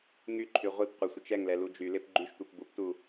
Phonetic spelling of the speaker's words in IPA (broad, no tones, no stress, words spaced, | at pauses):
ŋyǃʰy ʁʷip qʷɪsʷɪt͡ʃ ɛŋlɛ lud͡ʒylɪp ɡ͡ǃyʃtʷip buptu